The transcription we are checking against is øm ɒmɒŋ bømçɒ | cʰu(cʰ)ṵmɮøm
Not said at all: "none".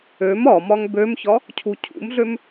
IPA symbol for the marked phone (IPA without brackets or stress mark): cʰ